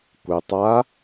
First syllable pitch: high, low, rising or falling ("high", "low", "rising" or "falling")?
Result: low